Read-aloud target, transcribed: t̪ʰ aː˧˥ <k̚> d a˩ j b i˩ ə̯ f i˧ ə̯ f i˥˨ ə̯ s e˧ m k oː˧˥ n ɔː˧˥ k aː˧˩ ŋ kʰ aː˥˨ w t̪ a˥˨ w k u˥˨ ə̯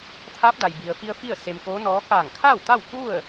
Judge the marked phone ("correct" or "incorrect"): incorrect